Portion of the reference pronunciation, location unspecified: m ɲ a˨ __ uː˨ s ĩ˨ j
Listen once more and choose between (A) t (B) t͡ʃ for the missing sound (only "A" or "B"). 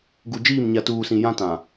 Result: A